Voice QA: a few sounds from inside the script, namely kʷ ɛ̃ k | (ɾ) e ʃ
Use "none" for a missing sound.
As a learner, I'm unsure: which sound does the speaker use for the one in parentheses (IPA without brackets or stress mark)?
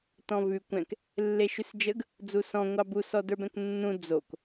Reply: lː